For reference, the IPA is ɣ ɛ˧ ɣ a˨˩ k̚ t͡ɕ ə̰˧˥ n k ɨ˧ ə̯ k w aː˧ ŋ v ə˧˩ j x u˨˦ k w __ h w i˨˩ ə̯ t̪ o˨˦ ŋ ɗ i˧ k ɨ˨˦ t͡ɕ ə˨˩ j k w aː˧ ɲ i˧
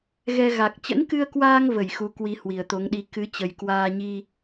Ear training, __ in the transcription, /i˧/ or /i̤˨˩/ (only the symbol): i˧